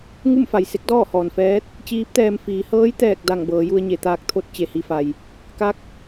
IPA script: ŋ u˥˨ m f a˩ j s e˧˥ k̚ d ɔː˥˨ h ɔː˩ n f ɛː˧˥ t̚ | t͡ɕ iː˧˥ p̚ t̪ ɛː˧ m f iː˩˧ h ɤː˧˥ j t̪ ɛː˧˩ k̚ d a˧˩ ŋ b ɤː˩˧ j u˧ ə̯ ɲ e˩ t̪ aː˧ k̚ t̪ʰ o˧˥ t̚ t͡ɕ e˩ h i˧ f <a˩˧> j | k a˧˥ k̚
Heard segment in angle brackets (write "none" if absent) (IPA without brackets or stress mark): a˩